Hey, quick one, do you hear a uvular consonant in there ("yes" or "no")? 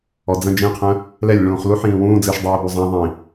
yes